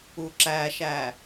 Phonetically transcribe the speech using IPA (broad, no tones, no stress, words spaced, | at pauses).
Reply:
uǁæʃæ